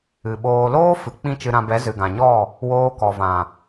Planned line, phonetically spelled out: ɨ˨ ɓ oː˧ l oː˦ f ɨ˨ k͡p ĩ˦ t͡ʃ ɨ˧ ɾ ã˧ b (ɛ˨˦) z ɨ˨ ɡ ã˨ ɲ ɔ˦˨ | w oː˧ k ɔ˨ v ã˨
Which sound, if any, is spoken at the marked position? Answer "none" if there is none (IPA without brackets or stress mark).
ɛ˨˦